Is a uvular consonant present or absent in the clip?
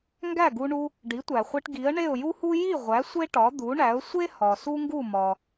present